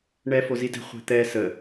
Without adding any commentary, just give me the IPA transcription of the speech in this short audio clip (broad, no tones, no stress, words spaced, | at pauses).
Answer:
ɳɛ fozidɛ̤ χʷe̤t̪ɛ sə